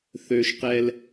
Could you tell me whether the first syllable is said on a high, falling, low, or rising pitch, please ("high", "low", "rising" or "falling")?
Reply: high